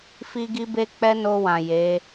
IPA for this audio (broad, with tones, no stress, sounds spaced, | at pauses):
f i˦ ɡ i˦ b e˦ k͡p ɛ˦ n o˧ w ã˨ j e˨˦